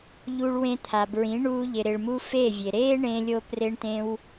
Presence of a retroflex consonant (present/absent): present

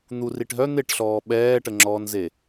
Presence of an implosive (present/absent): present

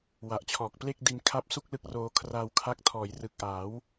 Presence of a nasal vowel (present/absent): absent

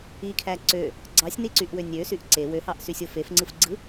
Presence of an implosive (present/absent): absent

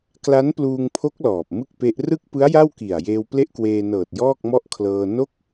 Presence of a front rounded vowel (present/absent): absent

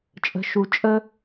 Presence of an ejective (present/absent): present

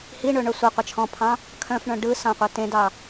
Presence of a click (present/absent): absent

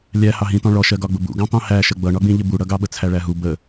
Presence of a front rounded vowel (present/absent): absent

